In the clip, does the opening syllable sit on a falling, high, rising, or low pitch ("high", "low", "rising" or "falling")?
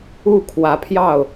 falling